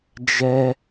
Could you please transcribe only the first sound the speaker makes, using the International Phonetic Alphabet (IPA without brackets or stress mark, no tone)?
d͡ʒ